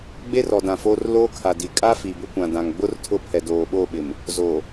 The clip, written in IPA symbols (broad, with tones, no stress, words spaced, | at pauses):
ɡ͡be˦rɔ˨dã˨ fo˦r loː˦kʰa˨ di˨ kʼa˦ fi˨bʊ˦ kʷã˨dã˨ŋ ɡ͡bʊ˦rtʰʊ˦˨ pʰɛ˨doː˨ɓo˦˨ ɓɪ˨m | zoː˨